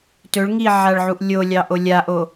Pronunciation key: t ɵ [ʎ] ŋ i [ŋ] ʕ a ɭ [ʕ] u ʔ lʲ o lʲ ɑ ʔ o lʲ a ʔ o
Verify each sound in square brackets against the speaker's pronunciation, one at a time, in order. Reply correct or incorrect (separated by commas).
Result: incorrect, incorrect, correct